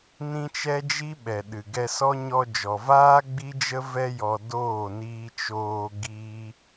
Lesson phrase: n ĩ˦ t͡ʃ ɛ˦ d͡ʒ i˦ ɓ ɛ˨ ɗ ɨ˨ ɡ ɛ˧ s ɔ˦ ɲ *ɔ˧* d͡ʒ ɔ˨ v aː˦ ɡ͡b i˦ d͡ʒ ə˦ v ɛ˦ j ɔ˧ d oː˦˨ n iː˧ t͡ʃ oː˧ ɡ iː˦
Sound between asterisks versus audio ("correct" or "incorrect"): correct